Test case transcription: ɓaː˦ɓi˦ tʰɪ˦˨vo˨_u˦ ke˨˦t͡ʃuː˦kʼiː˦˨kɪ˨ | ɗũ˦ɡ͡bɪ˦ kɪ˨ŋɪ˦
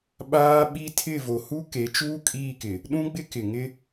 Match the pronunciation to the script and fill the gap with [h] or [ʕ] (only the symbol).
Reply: h